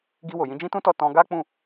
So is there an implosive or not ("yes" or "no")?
no